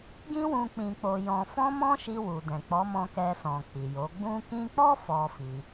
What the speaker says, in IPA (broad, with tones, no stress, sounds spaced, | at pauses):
ɡ ĩ˦ w ũ˧ k͡p ĩ˧ k͡p o˧ j ɔ̃˧ f ɔ̃˦ m ɔ̃˦ ʃ i˧ w u˨ d ɛ̃˨ k͡p ɔ˨˦ m ɔ̃˧ k ɛ˧ s ɔ̃˨ k͡p i˨ j o˨˦ ɡ͡b ũ˧ k ĩ˧ k͡p ɔ˦ f ɔ˦ f i˧